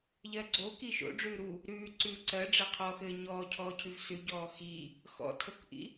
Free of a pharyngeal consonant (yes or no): yes